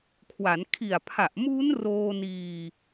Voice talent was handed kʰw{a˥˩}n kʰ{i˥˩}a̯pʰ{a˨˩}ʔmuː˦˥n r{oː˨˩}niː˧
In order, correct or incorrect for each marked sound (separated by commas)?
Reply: incorrect, incorrect, correct, incorrect